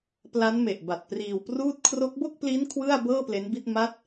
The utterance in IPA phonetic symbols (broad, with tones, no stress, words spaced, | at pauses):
pla˦˥nme˨˩ʔ ba˨˩t̚priː˧w pruː˦˥t̚kʰro˦˥k̚ bo˥˩k̚pli˦˥n kʰwɯ˥˩a̯bɤː˥˩ple˦˥nbi˥˩t̚ ma˦˥t̚